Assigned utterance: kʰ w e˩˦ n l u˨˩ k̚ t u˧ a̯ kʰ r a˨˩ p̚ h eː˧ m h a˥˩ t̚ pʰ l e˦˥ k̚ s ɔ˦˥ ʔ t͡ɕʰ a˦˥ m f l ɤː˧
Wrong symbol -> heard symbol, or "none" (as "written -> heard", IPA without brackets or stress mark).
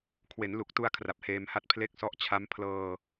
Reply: f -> pʰ